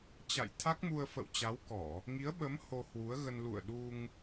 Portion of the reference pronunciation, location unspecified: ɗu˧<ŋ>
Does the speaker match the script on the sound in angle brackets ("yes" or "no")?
yes